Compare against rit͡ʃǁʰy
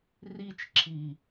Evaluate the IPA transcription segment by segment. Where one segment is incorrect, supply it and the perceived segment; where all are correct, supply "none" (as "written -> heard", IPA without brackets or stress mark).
y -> i